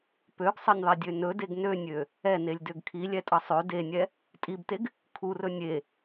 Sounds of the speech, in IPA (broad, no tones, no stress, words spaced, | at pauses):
pøɡsˤʌnʲðˤɛdʲø nɵdeɡ nønʲø | ɛnelʲdøɡ kʰilʲɛtʼʌ sˤø denʲɛ | tʼibteɡ | kʰurɵ nʲe